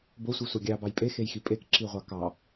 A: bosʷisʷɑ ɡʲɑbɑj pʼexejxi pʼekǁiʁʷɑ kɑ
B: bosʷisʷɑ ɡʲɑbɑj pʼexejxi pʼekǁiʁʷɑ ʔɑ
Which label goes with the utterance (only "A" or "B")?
A